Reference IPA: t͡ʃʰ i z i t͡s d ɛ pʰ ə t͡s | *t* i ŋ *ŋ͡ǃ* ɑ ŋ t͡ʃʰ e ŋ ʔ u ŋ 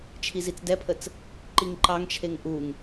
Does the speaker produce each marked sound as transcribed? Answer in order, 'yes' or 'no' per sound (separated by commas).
no, no